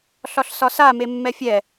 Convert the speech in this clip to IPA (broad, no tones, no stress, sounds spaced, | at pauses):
ɬ ɒ ɬ s ɒ s a m e mː ɛ fʲ ɛ